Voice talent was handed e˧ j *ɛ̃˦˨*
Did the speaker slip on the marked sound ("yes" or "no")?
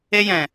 yes